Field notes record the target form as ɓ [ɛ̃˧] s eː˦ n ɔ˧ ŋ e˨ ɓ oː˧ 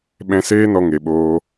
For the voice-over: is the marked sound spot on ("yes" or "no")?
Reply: yes